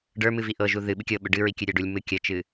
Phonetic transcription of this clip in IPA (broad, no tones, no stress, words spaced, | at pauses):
ɖə˞mɨ viʔɤʒu ðɨ ɓɨkʲɤ ɓʏɖɨɹi kʲɨɾʲə˞ɖulʲmɨ kʲət͡ʃɨ